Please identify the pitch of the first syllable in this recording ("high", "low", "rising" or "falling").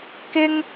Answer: high